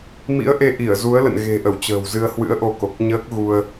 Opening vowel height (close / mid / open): close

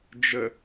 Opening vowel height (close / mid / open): mid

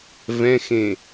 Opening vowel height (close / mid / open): mid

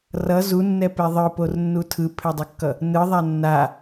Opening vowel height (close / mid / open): mid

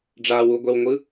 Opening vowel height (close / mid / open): open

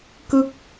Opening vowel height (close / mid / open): close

